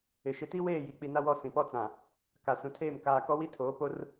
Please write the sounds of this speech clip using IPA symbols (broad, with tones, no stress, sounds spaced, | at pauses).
ɪ˨ ʃ ɪ˦ t i˦ w eː˦˨ j i˨ k͡p i˨ n a˦ w ɔ˦˨ s ĩ˨ p ɔ˦ t͡s ã˨ | k a˨ s ũ˨ tʰ eː˦˨ m k aː˨ k ɔ˦ w i˦ tʰ oː˨˦ p o˦ r